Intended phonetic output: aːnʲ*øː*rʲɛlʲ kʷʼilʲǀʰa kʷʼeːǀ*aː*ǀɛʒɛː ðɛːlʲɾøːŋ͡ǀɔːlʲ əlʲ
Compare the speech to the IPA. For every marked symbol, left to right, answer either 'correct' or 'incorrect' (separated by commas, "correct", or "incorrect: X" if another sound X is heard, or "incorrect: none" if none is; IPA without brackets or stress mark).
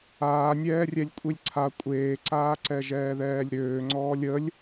incorrect: ɛː, correct